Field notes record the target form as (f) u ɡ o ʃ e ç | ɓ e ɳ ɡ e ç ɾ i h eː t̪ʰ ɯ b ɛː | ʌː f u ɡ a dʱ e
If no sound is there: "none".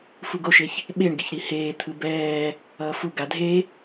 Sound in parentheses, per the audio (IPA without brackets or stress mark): f